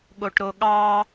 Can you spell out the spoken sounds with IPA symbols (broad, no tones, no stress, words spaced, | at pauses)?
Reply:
ɠoʈɾoɠɑ